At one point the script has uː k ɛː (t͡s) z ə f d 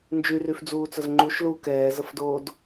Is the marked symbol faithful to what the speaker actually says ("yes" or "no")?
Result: no